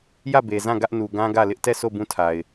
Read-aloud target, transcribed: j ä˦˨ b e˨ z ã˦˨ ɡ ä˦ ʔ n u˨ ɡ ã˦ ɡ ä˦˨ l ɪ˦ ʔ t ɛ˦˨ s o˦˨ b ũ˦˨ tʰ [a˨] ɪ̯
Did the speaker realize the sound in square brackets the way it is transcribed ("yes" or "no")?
yes